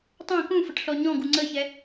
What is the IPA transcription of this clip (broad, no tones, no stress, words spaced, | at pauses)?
tˤã kũfəʈ ɬɔɲɔ̃ɡu ŋ͡ǀəçɛ